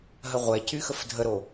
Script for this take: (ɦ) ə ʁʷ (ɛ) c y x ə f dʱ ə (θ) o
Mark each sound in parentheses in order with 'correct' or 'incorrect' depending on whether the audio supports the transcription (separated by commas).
correct, correct, incorrect